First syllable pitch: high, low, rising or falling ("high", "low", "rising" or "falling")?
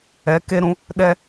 rising